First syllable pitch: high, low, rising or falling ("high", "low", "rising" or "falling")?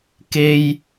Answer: high